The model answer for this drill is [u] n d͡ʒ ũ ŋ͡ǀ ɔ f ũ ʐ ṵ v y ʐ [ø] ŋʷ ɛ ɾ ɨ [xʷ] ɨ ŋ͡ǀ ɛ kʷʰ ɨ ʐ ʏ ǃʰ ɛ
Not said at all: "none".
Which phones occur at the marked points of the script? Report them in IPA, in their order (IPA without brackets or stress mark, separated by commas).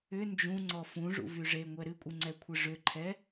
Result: ʏ, e, kʷʼ